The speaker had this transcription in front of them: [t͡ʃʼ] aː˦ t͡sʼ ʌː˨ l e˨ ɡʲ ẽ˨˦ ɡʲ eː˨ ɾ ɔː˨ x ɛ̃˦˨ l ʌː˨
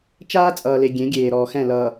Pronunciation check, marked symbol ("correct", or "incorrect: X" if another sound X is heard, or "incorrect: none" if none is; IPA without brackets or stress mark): incorrect: t͡ʃ